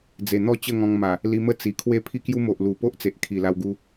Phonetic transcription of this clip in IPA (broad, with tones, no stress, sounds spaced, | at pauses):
d͡z e˨˩ n̪ ɔ˥˧ t͡ɕ ə˥˧ ŋ ɔ̃˧ ŋ m a˨˩ | l i˧ m ə˥˧ t͡s i˨˩ kʰ w e˥˧ pʰ i˦ k j u˦ m o˨ ʔ l u˨˩ p o˦ ʔ t͡s e˨ ʔ kʰ i˨˩ l a˧ w ɡ u˧